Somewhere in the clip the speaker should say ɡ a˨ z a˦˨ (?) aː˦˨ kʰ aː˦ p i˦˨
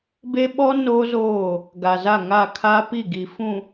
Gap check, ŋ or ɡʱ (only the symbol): ŋ